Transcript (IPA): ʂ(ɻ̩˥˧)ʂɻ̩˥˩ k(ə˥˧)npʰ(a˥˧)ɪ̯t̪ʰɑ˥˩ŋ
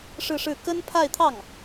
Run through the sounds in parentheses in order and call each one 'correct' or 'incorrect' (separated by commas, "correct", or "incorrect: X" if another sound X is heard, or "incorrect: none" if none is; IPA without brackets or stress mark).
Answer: correct, incorrect: ə˥, correct